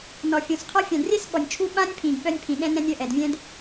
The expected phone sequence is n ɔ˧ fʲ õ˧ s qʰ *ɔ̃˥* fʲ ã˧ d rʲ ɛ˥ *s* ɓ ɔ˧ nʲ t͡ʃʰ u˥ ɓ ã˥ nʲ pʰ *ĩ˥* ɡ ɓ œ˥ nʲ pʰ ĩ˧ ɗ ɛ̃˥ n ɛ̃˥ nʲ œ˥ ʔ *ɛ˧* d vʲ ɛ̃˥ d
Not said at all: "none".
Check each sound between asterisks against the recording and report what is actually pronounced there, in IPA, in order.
ɔ˥, s, ĩ˧, ɛ˧

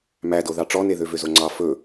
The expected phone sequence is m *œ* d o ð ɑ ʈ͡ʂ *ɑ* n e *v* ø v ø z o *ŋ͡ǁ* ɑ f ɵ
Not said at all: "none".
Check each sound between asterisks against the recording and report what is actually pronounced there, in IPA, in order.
æ, ɔ, ð, ŋ͡ǀ

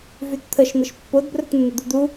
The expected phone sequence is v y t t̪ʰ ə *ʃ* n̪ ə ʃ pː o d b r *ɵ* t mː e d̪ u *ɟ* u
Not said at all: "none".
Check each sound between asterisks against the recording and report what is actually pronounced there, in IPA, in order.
ʃ, ɵ, d̪

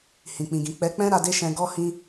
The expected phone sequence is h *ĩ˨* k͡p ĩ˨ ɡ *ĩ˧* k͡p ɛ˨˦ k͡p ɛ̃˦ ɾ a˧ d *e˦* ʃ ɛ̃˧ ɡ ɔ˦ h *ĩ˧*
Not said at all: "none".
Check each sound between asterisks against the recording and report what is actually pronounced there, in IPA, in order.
ĩ˨, ĩ˨, e˦, ĩ˧

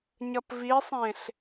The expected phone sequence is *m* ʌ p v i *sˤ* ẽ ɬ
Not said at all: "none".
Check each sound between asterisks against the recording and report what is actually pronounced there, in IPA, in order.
ɲ, sˤ

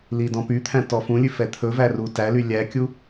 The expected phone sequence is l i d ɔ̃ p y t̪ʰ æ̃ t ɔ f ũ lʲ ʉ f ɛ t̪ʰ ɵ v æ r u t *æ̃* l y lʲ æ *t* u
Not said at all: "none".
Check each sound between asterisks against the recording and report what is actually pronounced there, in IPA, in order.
æ, kʲ

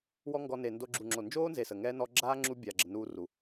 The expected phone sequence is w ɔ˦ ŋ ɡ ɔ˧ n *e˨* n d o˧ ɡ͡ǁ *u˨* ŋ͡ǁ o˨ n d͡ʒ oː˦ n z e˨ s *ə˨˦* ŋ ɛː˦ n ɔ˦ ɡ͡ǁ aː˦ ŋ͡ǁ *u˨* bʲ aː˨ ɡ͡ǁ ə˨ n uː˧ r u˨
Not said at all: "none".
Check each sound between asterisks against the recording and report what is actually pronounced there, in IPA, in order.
e˨, u˨, ə˨, u˦

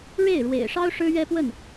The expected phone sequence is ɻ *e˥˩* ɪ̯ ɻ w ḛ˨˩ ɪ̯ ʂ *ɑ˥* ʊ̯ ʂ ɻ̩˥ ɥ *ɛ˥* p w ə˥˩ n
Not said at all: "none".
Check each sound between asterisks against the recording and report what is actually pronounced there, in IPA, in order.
e˥˩, ɑ˥, ɛ˥

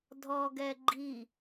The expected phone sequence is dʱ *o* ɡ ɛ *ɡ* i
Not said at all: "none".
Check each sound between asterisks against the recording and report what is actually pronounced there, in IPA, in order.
ɔ, ɡ͡ǃ

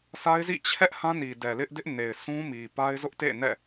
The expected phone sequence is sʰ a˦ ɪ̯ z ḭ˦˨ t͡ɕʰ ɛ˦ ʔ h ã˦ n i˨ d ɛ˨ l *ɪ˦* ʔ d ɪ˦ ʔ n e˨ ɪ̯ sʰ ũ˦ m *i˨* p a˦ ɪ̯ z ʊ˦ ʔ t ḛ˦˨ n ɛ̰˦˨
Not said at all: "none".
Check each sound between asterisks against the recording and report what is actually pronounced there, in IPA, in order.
ɪ˦, i˨

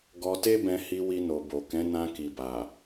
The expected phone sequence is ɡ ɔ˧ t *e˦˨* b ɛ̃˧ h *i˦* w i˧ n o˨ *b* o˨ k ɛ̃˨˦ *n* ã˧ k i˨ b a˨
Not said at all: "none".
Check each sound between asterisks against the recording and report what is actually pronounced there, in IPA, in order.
e˦, i˧, b, n

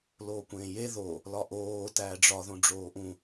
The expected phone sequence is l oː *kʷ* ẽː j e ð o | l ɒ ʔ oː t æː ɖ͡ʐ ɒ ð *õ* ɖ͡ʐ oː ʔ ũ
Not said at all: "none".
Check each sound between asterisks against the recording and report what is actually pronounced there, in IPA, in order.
kʷ, õ

